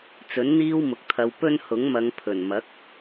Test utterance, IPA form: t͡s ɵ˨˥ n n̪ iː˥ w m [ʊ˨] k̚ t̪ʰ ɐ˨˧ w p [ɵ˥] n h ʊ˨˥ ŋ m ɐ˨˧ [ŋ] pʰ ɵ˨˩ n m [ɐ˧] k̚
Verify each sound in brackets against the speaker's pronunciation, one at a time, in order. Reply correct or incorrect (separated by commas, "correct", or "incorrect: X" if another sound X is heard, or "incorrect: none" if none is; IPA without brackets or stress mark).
correct, correct, correct, incorrect: ɐ˨˥